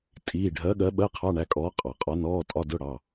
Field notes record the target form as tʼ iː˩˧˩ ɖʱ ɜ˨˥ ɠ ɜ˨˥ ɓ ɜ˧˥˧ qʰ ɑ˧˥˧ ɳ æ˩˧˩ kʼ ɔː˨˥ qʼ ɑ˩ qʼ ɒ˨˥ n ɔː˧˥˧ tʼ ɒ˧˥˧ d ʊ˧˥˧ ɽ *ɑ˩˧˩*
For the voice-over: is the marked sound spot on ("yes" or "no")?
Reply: yes